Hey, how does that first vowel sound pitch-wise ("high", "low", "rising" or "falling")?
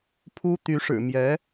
high